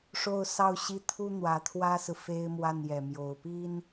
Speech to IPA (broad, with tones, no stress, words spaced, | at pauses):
ʂo˥˧ʊ̯sɑ˥˧ʊ̯ɕi˥˩ t̪ʰu˥n̪wä˧˥t̪ʰwä˥sɹ̩˨ fe˥ɪ̯mwa˥˩njɛ˨˩mjo˧˥ʊ̯ pi˥n